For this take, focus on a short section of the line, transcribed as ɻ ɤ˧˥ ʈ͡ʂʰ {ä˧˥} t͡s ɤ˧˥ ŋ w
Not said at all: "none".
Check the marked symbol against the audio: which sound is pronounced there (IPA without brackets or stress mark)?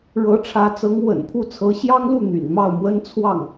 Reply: ä˧˥